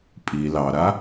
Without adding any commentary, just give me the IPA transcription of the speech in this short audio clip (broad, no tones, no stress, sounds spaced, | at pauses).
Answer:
pʼ i l ɑ ɾ a